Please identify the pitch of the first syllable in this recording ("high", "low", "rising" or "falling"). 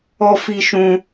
high